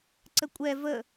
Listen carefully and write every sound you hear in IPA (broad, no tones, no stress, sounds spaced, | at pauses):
ǀ ə kʷʼ ɛ v ə